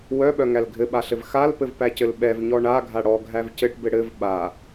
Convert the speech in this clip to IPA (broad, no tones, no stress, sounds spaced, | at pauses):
w œ ɓ œ ŋ æ l ɡʱ ɘ ɓ a ɬ ɘ v x a l p ɘ v p æ c ɘ l ɓ ɛ v ɲ ɔ ɳ a ɡʱ a ɽ ɔ ɡʱ æ v c ɘ ʈ b ɘ ɽ ɘ v ɓ a